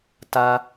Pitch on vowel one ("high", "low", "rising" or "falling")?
high